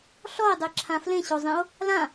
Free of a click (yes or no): no